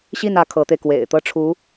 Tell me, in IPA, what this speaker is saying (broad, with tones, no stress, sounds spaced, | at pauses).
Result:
ɕ i˥˩ n ä˧˥ kʰ ɤ˧˥ t̪ e˧ ɪ̯ k w ḛ˨˩ ɪ̯ t̪ ɤ˥ ʈ͡ʂʰ u˧˥